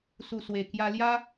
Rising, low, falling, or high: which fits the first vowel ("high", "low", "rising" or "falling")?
low